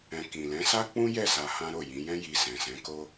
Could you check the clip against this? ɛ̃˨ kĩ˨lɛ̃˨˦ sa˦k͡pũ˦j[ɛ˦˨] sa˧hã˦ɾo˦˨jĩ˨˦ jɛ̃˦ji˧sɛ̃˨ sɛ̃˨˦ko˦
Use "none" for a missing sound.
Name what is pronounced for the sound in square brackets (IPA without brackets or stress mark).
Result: ɛ˦˨